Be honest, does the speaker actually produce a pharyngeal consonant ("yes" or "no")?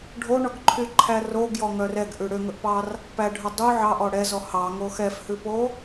yes